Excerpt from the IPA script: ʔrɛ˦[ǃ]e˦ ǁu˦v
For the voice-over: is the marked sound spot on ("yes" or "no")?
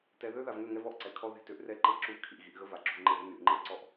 yes